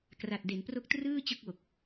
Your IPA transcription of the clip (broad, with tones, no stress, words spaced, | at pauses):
kra˨˩t̚de˩˦npro˦˥k̚trɯː˥˩ t͡ɕɯ˥˩k̚wo˨˩k̚